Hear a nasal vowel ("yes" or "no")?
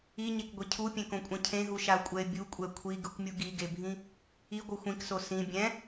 yes